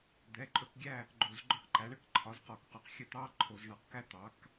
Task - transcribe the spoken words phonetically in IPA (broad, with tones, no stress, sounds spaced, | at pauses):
d̪ ɛ˩˧˩ ǃʼ ɵ˥˨ k ɡʲ æ˥˨ | ɡ͡ǃ o˧˩˧ z ɡ͡ǃ ɵ˥ q ǃ æ˩˥ ɳ ə˥ k ǃʰ ɒ˩˥ z q ɒ˧˩˧ k q ɒ˩˥ q xʲ ə˥˨ t̪ ɑ˥ ǃʰ o˧˩˧ z ɳ ɑ˧˩˧ q k æ˥ t̪ ɑ˩˥ k